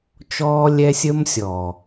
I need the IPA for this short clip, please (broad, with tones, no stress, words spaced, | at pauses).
t͡ʃɔː˦lʲɛ˦ sʲəː˦msʲɔː˨